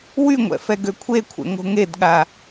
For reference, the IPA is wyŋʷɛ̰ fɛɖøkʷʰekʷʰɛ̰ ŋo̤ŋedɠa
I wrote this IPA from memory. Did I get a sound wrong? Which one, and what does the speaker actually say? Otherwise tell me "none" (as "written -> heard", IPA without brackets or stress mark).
ɖ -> ɡ